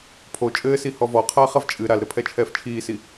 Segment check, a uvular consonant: present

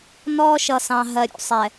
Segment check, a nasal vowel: present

